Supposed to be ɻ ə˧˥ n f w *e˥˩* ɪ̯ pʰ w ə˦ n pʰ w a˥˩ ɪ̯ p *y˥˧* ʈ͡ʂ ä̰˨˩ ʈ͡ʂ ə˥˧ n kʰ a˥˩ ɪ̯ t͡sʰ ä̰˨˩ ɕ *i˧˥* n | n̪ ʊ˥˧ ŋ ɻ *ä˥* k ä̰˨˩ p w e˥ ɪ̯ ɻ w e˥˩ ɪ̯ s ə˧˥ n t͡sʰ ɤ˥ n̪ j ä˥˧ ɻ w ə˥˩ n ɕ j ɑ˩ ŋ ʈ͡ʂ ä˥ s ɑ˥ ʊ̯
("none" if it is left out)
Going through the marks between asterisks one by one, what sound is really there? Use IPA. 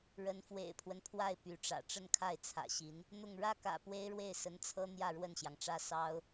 ḛ˨˩, y˧˥, i˧˥, ä˥˩

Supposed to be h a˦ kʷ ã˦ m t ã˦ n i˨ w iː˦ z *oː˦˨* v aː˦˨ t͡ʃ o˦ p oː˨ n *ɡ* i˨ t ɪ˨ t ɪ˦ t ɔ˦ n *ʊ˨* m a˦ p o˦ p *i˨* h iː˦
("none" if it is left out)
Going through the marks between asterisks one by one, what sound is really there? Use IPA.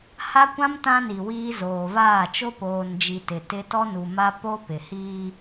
oː˨, d͡ʒ, u˨, ɪ˨

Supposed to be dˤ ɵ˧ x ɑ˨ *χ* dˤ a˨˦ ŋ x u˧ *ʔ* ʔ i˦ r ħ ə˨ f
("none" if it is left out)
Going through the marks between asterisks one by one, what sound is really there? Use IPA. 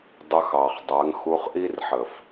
χ, χ

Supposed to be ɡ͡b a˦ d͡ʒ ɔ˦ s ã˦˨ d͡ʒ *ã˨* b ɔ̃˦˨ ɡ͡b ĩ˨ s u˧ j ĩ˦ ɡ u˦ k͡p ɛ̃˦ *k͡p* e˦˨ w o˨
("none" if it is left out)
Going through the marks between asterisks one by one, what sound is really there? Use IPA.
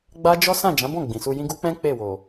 ã˨˦, k͡p

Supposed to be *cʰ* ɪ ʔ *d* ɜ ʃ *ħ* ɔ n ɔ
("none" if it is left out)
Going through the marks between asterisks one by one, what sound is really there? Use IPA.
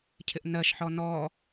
cʰ, n, ħ

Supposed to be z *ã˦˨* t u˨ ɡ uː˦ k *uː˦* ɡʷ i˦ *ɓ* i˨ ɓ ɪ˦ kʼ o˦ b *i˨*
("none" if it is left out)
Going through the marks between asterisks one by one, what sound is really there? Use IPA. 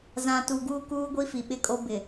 ã˨, uː˦, f, ɪ˨

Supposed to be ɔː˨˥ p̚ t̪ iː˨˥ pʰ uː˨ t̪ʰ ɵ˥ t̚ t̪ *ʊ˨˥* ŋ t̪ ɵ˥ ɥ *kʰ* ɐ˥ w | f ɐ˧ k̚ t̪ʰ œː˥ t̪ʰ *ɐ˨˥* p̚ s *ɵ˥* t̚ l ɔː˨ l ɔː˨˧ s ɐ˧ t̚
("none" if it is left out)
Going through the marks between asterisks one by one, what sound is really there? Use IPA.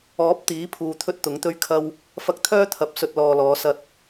ʊ˨˥, kʰ, ɐ˨˥, ɵ˧

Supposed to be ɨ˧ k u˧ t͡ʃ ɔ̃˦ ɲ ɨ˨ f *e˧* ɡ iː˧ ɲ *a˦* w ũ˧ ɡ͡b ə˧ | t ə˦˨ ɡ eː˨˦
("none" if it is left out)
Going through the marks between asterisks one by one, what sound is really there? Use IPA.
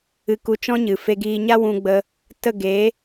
e˧, a˦

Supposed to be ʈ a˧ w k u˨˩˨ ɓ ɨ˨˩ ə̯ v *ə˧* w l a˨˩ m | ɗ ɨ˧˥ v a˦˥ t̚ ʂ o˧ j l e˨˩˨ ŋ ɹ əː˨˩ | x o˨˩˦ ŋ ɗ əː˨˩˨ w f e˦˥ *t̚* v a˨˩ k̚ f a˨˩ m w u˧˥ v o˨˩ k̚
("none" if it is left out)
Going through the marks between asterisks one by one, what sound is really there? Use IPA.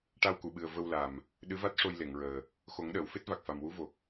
ə˧, t̚

